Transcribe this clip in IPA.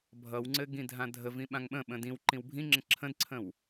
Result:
bʱʌwŋ͡ǀɘ ɡĩdʱãdʱəvĩ ɓãŋɓə̃ɓə̃ dĩw ǃĩwbʱĩŋ͡ǁə̃ ǁʰə̃dǀʰə̃w

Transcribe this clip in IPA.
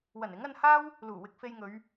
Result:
wɐ˨˩nɪ˨˥ŋɐ˧nhaː˥w | luː˨˩wɪ˧k̚fe˧jŋɵ˨˧ɥ

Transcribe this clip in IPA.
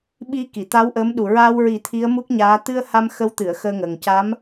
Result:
ɓi˧ki˨˩˨t̪a˧˥w ʔəː˧˥mɗu˨˩ ɹaː˧wɹi˨˩˦ t̪ʰi˧˥ə̯mu˦˥k̚ɲaː˧˥ t̪ɨ˧ə̯ ha˧mxə˧˥wt̪ɨ˨˩˨ə̯ xəː˧ŋəː˨˩ŋ ca˧˥m

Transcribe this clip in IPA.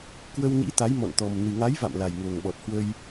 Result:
kwə˧wnḭ˧˥t̪a˨˦j mɔ̰˧˨nt̪ɔ˨˩m nɨ˨˩ŋa˨˦jva̰˧˨m la˨˩jŋo˨˩ŋɓɔ˨˩t̚ hwə˧j

